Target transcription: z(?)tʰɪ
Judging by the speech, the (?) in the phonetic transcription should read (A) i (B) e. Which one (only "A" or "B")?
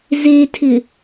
B